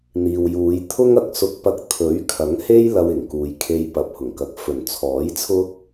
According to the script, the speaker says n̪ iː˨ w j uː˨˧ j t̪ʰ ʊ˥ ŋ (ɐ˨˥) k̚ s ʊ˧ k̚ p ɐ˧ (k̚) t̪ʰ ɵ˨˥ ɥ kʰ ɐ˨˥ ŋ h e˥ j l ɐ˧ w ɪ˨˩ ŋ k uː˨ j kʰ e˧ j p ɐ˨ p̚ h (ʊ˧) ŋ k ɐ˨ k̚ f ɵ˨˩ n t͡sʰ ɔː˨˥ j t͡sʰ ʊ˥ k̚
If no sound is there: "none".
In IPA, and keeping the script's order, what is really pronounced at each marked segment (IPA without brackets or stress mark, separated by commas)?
ɐ˨, k̚, ʊ˨˩